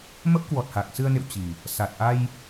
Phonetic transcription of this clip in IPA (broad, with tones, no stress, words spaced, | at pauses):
mə˦˥p̚kwɔ˨˩t̚ha˨˩k̚ sɨ˧ə̯nḛ˧˨w t͡ɕi˨˩ | sa˨˩t̚ ʔa˧j